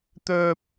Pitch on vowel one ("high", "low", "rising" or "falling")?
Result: high